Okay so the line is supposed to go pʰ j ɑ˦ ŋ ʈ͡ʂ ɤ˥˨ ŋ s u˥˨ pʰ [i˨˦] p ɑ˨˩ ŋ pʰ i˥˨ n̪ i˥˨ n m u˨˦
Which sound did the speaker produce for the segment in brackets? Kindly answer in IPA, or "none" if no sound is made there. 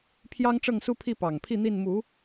i˥˨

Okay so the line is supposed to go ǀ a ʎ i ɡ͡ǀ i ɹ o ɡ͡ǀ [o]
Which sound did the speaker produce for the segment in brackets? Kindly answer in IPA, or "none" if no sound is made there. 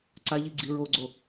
o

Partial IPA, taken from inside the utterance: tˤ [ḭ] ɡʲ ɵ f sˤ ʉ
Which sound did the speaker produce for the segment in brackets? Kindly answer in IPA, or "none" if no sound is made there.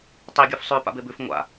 i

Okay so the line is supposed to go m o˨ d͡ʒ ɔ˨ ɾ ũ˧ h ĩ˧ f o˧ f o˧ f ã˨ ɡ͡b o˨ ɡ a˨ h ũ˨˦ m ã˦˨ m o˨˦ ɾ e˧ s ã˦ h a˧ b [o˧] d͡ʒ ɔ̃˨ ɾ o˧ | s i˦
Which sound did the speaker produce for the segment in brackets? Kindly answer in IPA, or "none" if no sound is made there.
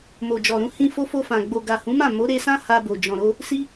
o˨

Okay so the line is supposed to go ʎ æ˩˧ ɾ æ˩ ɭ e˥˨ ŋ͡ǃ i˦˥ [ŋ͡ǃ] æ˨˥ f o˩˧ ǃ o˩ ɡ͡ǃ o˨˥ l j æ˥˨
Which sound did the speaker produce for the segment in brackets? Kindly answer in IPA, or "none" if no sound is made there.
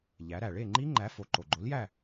ŋ͡ǃ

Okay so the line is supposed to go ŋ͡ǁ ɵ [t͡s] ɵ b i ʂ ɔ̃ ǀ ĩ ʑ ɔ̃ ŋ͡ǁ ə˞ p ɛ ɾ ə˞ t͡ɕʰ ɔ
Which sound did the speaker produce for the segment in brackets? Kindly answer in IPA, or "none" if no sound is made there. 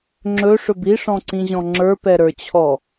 ʂ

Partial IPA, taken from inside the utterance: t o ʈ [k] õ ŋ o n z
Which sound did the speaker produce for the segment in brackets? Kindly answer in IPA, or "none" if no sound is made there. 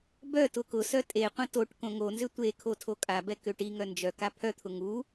k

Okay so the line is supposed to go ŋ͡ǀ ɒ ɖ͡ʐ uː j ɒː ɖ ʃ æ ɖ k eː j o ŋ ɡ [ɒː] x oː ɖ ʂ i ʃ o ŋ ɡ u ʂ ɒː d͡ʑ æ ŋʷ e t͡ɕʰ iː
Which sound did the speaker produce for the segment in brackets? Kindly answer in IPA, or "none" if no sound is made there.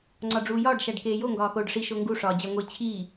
ɒː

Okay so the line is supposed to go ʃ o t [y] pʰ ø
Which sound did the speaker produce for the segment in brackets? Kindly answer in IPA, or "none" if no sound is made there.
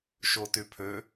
y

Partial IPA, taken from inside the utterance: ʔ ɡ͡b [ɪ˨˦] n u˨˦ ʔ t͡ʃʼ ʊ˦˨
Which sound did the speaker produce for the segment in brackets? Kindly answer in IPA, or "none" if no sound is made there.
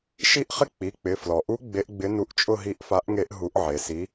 ɪ˨˦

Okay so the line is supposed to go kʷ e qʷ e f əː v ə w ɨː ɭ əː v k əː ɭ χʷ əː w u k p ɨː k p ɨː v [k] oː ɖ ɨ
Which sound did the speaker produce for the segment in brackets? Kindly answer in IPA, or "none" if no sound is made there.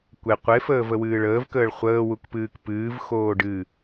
x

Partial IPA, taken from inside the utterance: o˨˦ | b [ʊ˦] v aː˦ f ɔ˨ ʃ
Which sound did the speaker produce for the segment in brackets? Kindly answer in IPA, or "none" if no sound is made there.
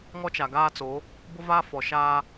ʊ˦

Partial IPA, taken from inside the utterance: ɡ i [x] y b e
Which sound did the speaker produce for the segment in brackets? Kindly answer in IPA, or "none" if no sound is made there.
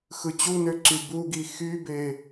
x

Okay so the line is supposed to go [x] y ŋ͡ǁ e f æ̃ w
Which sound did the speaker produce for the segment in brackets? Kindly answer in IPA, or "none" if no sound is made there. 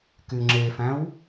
k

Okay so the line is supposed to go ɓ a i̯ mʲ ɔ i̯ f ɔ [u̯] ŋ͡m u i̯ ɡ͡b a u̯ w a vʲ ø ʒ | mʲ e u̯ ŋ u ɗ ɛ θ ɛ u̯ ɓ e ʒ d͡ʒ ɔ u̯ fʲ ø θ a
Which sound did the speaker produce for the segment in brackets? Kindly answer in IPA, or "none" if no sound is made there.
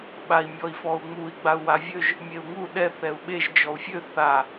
u̯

